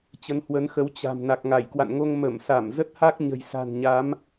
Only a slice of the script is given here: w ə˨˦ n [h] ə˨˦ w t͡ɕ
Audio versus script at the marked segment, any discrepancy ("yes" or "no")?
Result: yes